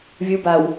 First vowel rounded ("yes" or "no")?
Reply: yes